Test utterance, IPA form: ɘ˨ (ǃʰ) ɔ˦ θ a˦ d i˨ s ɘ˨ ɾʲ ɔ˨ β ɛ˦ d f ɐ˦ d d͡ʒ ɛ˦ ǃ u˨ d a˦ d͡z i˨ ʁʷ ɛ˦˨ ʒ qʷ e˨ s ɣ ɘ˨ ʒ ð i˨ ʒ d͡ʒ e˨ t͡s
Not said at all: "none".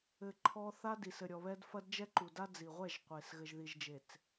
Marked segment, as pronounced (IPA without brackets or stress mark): ǃʰ